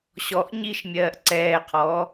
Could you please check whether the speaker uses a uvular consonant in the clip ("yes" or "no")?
yes